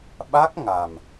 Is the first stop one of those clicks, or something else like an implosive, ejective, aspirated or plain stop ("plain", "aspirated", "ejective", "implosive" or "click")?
implosive